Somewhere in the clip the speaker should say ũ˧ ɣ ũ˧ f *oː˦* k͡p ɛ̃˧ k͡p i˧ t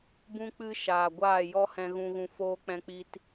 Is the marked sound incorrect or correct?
correct